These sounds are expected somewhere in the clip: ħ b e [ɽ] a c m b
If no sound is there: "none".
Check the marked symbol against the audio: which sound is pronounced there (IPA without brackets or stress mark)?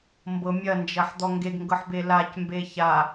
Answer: l